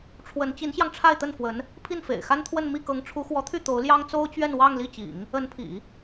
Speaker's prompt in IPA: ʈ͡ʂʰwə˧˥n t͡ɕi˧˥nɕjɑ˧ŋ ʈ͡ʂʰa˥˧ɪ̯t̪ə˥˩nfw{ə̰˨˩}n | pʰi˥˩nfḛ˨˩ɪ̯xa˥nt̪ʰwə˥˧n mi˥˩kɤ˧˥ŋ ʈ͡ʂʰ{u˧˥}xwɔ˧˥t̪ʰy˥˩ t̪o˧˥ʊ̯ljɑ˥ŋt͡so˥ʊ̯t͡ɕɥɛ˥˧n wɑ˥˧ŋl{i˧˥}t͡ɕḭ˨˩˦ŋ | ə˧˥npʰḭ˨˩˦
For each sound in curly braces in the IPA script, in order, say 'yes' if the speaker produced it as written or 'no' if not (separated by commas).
no, yes, no